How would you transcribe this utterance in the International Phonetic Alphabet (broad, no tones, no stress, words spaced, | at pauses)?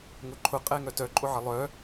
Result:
ŋʊǃʰʊ qʼɛŋœtœ ǃʼʊʕəlˠœ